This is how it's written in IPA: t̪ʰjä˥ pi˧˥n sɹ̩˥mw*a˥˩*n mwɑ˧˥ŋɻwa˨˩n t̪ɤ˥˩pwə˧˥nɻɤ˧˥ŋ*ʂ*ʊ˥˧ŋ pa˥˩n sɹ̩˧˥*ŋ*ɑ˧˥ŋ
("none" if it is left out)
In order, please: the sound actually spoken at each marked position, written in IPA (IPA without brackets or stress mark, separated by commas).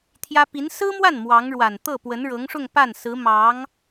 a˥˩, ʂ, m